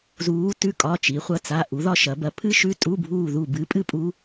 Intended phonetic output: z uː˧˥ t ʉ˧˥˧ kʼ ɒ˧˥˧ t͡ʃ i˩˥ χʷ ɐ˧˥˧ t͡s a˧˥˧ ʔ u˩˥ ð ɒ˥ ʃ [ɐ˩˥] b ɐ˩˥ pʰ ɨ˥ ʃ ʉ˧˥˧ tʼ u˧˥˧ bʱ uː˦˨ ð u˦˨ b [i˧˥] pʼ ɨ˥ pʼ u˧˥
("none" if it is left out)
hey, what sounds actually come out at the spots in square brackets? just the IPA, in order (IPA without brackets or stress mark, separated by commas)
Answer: ɐ˩˥, ɨ˧˥